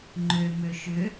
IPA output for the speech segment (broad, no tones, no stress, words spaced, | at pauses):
ŋ͡ǃømø ʃʏ